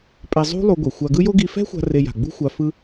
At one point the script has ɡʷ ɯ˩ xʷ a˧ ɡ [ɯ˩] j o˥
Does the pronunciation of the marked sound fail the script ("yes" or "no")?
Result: yes